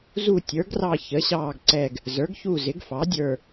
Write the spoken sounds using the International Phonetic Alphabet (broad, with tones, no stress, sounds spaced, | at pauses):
z u˦˨ tʲ ə˞˩˥ ɡ r ɑ˦˨ ç ə˩˥ ɕ ɑː˦˨ ɡ ǀ ɛ˦˨ ɡ | z ə˞˩˥ ɡ ç u˦˨ z ɪ˩˥ ɡ f ɑ˩˥ dʲ ə˞˦˨